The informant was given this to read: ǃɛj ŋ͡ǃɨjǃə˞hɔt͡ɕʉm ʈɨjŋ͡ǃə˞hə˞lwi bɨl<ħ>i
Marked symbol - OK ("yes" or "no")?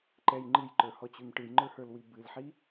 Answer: yes